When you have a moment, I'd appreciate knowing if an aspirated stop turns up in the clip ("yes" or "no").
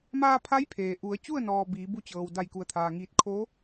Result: yes